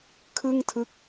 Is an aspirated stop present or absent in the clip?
present